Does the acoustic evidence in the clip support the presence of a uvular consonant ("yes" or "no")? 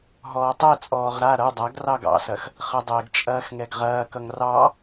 yes